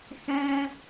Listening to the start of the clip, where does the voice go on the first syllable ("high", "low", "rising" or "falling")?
high